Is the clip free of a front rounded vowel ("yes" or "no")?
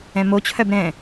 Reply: no